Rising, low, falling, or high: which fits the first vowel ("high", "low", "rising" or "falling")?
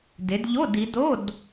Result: rising